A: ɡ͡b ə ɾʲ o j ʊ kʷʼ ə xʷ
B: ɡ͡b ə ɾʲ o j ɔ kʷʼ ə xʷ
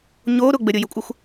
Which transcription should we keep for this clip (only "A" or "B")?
A